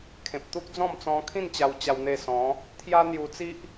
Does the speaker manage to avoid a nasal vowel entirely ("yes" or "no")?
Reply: no